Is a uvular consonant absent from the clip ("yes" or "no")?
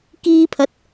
yes